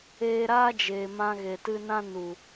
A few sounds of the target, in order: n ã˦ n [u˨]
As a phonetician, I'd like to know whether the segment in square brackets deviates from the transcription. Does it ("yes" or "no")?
no